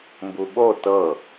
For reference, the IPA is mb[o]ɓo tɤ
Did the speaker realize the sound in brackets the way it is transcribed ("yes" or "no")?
no